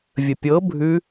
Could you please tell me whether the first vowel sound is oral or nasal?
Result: oral